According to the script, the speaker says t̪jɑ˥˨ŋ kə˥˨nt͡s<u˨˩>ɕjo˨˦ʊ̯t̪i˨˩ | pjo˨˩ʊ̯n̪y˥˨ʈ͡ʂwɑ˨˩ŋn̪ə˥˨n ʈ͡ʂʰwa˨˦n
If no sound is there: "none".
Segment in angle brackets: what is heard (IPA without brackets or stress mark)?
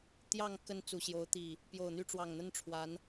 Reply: u˨˩